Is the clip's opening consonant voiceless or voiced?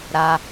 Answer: voiced